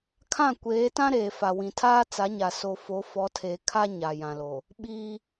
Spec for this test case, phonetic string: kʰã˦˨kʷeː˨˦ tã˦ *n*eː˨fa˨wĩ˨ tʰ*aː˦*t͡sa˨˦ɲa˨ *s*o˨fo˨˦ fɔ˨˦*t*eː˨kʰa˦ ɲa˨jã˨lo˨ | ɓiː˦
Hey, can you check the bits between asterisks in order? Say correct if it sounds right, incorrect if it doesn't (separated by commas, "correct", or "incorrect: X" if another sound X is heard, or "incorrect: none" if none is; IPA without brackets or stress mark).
incorrect: ɾ, correct, correct, incorrect: tʰ